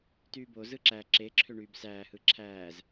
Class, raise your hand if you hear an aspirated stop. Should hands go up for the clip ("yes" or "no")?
yes